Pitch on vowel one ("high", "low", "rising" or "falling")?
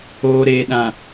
low